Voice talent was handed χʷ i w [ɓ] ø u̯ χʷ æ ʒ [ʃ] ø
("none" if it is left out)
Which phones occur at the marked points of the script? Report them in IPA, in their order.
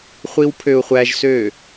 pʰ, s

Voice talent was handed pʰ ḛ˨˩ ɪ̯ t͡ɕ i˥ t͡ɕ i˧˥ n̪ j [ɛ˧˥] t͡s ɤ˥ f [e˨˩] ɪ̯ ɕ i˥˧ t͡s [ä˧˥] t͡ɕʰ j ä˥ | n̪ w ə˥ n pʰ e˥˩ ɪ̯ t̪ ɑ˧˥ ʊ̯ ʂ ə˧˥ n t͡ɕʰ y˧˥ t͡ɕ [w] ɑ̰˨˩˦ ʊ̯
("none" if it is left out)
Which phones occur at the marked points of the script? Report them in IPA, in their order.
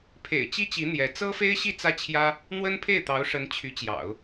ɛ˧˥, e˥, ä˥˩, j

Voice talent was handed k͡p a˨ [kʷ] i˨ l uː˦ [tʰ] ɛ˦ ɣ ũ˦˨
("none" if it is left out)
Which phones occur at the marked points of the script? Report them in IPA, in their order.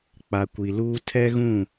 kʷ, tʰ

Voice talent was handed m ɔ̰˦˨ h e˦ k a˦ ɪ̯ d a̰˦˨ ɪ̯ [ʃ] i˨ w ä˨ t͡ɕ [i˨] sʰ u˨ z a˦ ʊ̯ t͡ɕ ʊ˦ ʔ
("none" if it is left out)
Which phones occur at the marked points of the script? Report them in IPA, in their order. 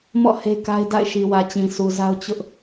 ʃ, ĩ˨

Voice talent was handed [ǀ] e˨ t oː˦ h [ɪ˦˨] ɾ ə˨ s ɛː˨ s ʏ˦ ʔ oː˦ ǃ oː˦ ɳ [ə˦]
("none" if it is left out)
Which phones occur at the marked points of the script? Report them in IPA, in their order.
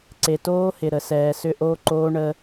ǀ, ɪ˨, ə˦

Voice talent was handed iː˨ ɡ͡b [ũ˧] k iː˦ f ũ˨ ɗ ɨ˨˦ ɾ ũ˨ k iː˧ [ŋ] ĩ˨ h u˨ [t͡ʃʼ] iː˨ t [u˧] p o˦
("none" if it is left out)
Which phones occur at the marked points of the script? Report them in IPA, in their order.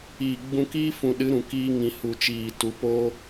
ũ˧, ŋ, t͡ʃ, u˧

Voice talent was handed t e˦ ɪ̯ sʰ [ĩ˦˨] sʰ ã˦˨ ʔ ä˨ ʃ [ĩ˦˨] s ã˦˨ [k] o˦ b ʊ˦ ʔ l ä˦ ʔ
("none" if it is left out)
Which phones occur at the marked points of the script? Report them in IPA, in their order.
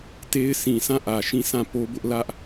ĩ˨, ĩ˦˨, p

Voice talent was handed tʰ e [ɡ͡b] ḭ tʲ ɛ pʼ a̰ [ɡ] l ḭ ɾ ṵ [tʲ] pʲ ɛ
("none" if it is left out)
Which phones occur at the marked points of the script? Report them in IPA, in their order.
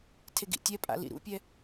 ɡ, none, none

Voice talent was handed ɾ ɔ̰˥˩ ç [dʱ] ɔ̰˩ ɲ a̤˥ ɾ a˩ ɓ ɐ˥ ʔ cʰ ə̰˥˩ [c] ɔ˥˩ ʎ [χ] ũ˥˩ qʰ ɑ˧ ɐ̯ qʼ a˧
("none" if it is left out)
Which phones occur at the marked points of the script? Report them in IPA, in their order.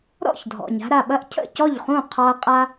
dʱ, c, χ

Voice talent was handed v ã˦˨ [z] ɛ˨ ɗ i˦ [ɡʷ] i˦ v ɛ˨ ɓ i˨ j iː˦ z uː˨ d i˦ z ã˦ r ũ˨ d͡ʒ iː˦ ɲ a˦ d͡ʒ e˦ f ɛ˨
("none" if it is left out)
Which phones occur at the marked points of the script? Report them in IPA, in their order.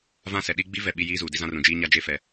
s, ɡ͡b

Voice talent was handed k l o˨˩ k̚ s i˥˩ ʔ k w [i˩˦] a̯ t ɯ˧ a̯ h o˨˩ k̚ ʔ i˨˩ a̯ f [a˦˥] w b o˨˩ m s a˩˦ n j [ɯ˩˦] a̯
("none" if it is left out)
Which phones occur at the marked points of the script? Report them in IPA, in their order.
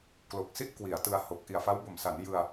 i˩˦, a˦˥, ɯ˧

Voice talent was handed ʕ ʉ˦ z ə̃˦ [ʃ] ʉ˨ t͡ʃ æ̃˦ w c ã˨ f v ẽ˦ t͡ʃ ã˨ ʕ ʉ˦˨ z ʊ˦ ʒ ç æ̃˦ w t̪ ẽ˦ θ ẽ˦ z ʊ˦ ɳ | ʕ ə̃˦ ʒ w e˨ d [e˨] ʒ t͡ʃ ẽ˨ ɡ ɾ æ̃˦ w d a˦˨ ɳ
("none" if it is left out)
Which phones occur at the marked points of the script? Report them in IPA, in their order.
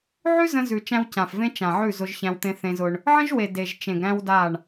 z, e˨

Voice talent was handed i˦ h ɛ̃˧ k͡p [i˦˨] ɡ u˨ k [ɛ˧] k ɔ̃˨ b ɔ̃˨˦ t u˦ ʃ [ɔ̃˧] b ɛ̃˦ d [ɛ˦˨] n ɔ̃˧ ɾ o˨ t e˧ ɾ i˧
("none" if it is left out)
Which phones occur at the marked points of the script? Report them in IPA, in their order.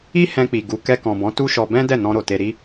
i˨, ɛ˧, ɔ˧, ɛ˦˨

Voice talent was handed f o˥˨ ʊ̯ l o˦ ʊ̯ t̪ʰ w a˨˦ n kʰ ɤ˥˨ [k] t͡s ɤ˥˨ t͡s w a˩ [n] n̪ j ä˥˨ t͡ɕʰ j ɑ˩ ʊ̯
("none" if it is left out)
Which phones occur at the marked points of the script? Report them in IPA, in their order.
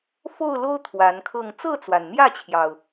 ŋ, n

